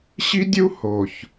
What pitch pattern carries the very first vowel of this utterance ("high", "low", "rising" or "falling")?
high